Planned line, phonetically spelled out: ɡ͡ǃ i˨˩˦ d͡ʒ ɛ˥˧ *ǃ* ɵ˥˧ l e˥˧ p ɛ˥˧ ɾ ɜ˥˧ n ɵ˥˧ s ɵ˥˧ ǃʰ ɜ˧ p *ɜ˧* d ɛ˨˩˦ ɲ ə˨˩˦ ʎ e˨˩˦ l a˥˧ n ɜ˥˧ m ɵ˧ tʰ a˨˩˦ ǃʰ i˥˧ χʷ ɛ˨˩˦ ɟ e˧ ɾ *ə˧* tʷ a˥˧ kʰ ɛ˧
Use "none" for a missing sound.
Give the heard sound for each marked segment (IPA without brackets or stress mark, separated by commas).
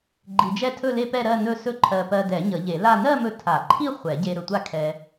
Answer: tʰ, ɜ˧, ɵ˧